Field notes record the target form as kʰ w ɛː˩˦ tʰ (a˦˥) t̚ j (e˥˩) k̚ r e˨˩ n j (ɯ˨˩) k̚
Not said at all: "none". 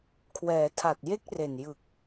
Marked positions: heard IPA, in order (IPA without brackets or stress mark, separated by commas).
a˨˩, e˥˩, ɯ˨˩